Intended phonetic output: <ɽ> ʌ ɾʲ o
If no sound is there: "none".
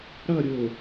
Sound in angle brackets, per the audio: ɽ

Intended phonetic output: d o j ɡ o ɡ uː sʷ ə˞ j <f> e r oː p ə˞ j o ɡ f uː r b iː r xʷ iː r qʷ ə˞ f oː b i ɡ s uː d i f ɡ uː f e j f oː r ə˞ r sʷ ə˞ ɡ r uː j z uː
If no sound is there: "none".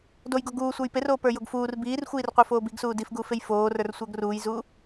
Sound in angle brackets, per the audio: p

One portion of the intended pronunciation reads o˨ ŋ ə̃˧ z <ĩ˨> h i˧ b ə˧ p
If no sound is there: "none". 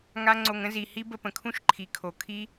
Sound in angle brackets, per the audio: i˨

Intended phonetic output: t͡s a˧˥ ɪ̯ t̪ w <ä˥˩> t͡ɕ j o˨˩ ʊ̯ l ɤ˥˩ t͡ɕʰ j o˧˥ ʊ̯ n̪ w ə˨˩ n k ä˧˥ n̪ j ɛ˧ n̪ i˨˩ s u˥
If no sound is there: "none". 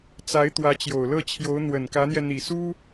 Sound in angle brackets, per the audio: ä˧˥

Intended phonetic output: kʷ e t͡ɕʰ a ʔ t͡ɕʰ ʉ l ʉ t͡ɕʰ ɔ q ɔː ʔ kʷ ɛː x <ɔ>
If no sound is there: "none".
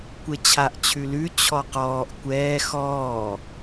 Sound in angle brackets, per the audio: ɔː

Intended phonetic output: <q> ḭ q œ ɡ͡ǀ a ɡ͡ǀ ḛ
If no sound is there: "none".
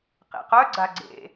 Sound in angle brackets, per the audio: q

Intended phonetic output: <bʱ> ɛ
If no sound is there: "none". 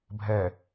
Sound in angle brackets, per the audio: bʱ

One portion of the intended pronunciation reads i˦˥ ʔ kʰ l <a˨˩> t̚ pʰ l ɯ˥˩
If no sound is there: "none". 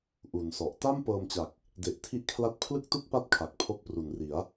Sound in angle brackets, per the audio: a˦˥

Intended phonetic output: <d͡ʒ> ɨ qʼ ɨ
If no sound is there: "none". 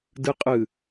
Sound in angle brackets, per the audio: d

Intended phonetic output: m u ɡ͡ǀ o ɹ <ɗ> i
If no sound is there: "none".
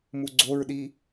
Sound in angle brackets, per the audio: ɗ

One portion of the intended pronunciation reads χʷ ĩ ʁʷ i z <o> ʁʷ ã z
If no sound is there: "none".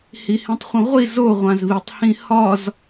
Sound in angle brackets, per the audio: o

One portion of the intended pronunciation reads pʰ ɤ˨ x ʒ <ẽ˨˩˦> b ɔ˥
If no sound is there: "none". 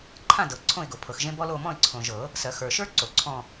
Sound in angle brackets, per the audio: ẽ˥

